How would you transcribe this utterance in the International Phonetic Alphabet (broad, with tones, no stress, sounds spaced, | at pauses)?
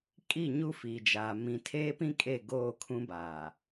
kʼ i˦˨ ɲ u˦ f iː˨ d͡ʒ aː˨ m ĩ˨ tʰ eː˦ p ĩ˦ kʼ e˦˨ ɡ oː˦˨ kʰ ũ˦ b aː˨